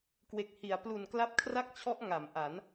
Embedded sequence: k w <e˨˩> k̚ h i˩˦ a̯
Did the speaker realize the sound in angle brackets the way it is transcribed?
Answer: yes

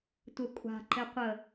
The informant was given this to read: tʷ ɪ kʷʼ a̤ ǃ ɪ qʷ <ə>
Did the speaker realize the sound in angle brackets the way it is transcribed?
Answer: yes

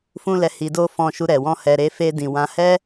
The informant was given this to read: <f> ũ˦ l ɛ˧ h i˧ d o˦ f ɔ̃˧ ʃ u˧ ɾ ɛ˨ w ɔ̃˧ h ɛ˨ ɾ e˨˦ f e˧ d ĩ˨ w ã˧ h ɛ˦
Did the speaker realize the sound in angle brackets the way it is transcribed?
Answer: yes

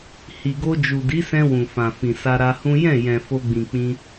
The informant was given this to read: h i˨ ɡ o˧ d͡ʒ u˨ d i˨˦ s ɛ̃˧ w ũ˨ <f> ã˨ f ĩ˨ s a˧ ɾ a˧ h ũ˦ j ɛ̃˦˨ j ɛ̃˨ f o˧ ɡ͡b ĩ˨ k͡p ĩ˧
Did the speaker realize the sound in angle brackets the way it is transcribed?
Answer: yes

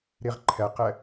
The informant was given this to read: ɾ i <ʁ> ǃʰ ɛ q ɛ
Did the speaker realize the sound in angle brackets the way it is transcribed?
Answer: yes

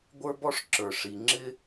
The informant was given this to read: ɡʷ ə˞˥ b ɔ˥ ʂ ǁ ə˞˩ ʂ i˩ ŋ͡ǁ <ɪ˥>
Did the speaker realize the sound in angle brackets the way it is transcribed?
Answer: yes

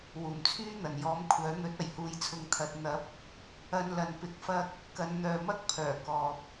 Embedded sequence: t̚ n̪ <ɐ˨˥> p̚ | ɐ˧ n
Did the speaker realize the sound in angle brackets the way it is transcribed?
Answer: yes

